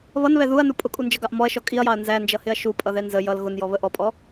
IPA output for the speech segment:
β ʌ n β ɛ ð u ɐ̯ n u pʼ ʊ kʼ u n d͡ʒ ʌ ɡ ɑ ʔ m ɔ ɐ̯ ʃ ɔ kʼ i ɐ̯ j ɑ ɐ̯ n z æ n d͡ʒ ʌ h ɪ ɐ̯ ʃ u pʼ ʌ ð ɛ n z ə j ʌ l ɣ ʊ n j ɔ β ə ʔ ɔ pʼ ɔ

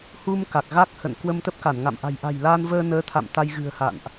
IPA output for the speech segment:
h u˧ m k a˨˩ k̚ ɣ a˦˥ k̚ h ə̰˧˨ n k w ə˧ m t̪ ə˦˥ p̚ k a˧˩ n ŋ a̰˧˨ m ʔ a̤˨˩ j ʔ a̤˨˩ j l a˧ n v əː˧ n əː˨˦ t̪ʰ a̰˧˨ m t̪ a˧ j ɣ ɨ̤˨˩ ə̯ h a̰˧˨ n ʔ

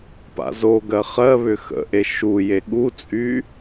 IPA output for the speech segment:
p a̰ z o ɡ ɜ χ ɜ β ʏ x ə̰ ʔ e ʃ u j e ɠ u t͡sʼ y

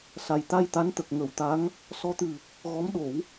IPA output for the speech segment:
s a˨˩ j t̪ a˧ j t̪ a˧˥ n t̪ ə˨˩ k̚ ŋ ə˨˩˦ w t̪ a˧˥ ŋ | s ɔ˧˥ t̪ ɨ˨˩ | ɣ ɔ˧˥ m ɗ o˨˩˦ w

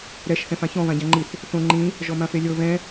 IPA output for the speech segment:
ɾ ɛ ʃ θ ɛ̃ f ã ç ɔ̃ β ã ɟ ã ŋ͡ǃ i θ | θ õ ŋ͡ǃ ĩ | ʒ ɔ m ã f e lʲ ɤ β ɛ̃

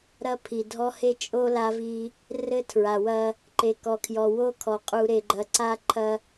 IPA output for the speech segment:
ɾ ɐ˦ pʰ i˨ dʱ ɔ˦ h e˦ t͡ʃʼ o˦ l a˦ v i˦ | r ɘ˦ tʰ ɹ a˨ w ɐ˦ | ǃ e˨ k ɔ˨ kʰ j ɔ˨ w o˦ kʰ ɔ˨ qʼ u˨ ɾ e˨ ɡ͡ǃ ɐ˨ ǀ a˦ ǃʰ ɐ˦

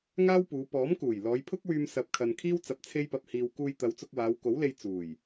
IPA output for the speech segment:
ŋ aː˥ w p uː˨˧ p ɔː˨˥ m k uː˨˩ j l ɔː˨˧ j pʰ ʊ˥ k̚ w yː˧ m s ɐ˨˥ p̚ kʰ ɐ˨ n kʰ iː˥ w t͡s ɐ˧ p̚ t͡sʰ e˥ j p ɐ˧ p̚ h iː˧ w k uː˧ j t̪ ɐ˨˧ w t͡s ʊ˧ k̚ w aː˨˧ w k o˨˥ w l e˧ j t͡s uː˨˩ j

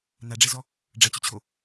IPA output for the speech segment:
n a ɖ͡ʐ ɛ z ɔ | ɖ͡ʐ ɐ t͡ɕ ʏ t͡ɕʰ o

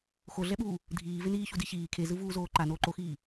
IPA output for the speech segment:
x o ɮ ɛ ɓ uː | dʱ iː v e n iː ç u d i ç iː kʰ e z ɯ v uː z oː ǃ a n oː ǃ o x iː

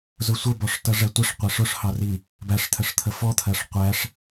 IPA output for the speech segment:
z ʊ sʷ ə b ɔ ʂ t ʌ ʐ ɛ tʷ ə ʂ qʷ æ ʂ ʊ ʂ h ɑ r i | b æ ʂ t̪ʰ ə ʂ t̪ʰ ə f ɔ t̪ʰ ɜ ʂ qʷ æ ʂ

